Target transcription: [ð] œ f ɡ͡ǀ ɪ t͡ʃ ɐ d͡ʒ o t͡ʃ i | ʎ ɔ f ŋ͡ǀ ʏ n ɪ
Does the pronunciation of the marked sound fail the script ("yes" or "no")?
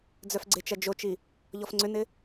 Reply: yes